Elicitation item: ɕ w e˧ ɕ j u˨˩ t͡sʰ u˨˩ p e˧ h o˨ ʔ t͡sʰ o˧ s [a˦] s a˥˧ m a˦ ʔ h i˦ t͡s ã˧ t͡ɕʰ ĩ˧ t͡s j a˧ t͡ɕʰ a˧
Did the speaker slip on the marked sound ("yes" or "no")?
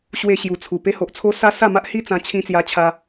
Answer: no